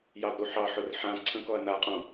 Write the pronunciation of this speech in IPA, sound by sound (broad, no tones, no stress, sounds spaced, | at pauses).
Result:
j ɑ d ɾ u ħ ɑ ħ ʊ r ħ ã ǀʰ ə̃ k ɔ ɐ̯ n a qʼ õ